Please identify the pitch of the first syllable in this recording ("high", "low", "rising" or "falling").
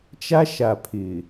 high